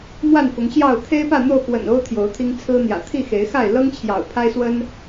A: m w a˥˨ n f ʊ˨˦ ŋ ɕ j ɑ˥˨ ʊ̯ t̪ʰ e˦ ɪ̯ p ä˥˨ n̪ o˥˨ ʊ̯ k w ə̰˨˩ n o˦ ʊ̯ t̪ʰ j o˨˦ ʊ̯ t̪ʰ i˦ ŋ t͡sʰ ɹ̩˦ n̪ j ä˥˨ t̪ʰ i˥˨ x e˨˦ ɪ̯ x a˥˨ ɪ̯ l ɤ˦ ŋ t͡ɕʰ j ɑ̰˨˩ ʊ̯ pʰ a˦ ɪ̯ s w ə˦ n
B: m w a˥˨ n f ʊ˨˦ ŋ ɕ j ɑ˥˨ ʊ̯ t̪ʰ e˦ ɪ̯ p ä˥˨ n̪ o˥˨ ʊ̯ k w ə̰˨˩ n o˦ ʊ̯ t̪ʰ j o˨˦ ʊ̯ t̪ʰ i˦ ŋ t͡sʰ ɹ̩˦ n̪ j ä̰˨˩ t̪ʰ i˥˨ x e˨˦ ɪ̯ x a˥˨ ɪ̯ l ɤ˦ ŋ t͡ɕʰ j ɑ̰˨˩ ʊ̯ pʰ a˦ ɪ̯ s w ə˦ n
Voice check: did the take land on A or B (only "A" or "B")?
B